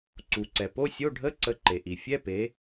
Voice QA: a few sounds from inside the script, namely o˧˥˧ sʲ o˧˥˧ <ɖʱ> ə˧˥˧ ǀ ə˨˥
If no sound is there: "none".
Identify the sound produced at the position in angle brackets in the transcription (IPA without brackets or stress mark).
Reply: ɖʱ